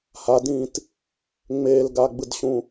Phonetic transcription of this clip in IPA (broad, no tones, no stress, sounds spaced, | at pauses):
h a d ĩː t | ŋ͡m eː l ɡ a ɡ͡b ɯ d ɕ ũ